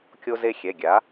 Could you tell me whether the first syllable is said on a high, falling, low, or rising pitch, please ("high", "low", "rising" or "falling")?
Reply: high